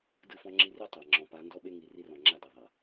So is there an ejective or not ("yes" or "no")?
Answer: no